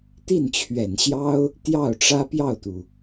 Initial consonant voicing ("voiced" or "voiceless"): voiceless